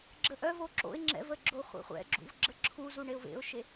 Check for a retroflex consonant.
present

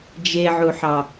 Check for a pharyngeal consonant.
present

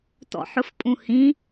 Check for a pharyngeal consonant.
present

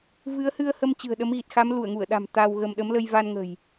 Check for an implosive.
present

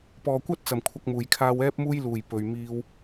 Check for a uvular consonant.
absent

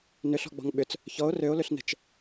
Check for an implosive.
present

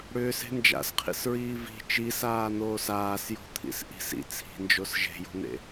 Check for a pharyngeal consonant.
absent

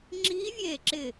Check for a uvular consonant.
absent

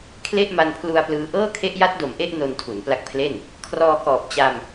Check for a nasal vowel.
absent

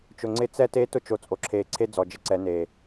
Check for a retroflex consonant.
absent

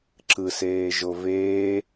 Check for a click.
present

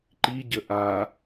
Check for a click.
present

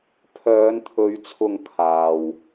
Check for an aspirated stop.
present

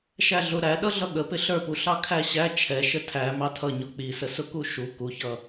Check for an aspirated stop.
present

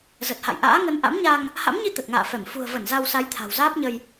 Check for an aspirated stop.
present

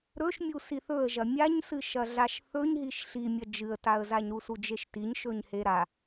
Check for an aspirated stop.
absent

